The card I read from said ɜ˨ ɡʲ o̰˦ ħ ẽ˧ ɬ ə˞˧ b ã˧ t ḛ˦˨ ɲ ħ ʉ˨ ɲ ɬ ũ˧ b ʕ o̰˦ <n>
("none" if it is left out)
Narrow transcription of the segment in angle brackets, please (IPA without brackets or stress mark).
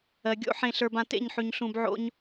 ɲ